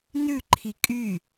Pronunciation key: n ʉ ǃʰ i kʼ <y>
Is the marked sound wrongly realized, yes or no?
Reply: no